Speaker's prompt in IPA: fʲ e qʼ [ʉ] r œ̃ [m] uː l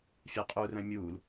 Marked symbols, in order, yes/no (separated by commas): no, no